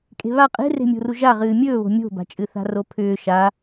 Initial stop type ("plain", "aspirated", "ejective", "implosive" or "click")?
ejective